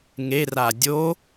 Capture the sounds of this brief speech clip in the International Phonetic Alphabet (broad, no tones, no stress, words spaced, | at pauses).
ŋera dʲo